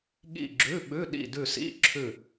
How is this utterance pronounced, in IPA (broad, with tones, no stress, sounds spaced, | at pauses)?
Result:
ɠ ḭ˦˨ ɡ͡ǁ ʉ˧˥˧ ɓ ʉ˧˥˧ ɗ ḭ˦˨ d ʉ˦˨ s ḭ˧˥˧ ǁʰ ʉ˦˨